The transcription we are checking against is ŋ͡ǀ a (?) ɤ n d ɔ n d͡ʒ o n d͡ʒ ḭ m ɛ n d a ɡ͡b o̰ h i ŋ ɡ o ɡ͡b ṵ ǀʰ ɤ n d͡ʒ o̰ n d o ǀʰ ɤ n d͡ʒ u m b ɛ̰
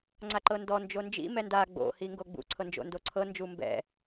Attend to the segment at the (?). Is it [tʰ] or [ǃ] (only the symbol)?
ǃ